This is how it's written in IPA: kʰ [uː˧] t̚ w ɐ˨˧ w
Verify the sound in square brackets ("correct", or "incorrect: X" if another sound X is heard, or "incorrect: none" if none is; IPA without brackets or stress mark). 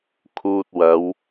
correct